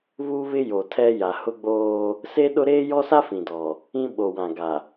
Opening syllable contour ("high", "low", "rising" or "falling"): high